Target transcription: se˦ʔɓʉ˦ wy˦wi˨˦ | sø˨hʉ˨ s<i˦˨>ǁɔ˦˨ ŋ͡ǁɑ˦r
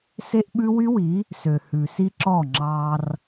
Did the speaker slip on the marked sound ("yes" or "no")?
yes